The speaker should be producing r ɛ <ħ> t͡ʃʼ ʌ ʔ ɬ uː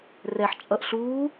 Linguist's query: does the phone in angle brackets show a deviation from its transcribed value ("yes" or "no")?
no